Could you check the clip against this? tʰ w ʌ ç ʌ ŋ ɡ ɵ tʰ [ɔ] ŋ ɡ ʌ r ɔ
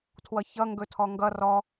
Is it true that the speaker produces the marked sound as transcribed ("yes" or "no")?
yes